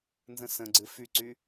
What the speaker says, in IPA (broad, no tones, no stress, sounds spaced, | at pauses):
n z ə̃ s ə̃ ɡ͡ǀ ɨ f y ǀ y